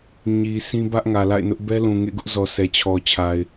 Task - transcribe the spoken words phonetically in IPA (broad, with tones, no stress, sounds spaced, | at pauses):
ɲ i˨ s ĩ˦ b ä˦ ʔ ŋ ä˨ l a̰˦˨ ɪ̯ n ʊ˦ ʔ b ɛ˦ l ũ˨ ŋ ḛ˦˨ ɡ ʊ˦ ʔ z ɔ˨ s ɛ˨ t͡ɕʰ ɔ˨ t͡ɕʰ a˨ ɪ̯